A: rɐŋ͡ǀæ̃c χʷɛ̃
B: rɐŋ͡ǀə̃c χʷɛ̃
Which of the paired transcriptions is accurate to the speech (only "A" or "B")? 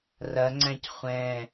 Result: A